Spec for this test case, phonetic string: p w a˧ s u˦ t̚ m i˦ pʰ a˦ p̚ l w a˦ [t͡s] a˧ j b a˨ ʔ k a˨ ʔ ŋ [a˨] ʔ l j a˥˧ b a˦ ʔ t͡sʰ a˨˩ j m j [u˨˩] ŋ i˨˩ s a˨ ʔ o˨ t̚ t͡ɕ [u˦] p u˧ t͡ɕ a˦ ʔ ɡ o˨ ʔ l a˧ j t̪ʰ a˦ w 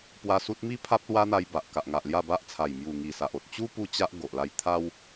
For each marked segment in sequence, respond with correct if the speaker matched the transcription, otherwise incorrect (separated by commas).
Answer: incorrect, correct, correct, correct